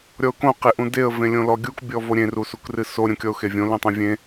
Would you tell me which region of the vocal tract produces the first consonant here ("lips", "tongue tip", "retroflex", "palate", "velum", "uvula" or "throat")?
tongue tip